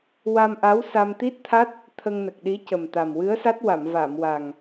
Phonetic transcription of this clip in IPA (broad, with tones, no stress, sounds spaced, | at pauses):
w a˧ m ʔ a˧˥ w s a˧ m t̪ i˦˥ t̚ t̪ʰ a˦˥ t̚ | t̪ʰ ə˧ ŋ n ə˨˩ k̚ ɗ i˧˥ c ə˨˩ m t̪ a˨˩ m w ɨ˧˥ ə̯ s a˦˥ t̚ w a˨˩˨ m v a˨˩˨ m w a˨˩ ŋ